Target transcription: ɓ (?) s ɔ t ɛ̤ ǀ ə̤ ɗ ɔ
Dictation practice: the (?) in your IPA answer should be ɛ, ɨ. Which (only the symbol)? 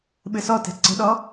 ɨ